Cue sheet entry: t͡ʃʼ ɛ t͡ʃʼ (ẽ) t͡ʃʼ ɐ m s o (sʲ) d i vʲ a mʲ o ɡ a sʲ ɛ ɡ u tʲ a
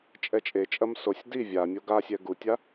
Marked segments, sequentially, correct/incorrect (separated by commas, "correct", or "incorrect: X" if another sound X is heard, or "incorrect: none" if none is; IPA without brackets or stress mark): incorrect: e, correct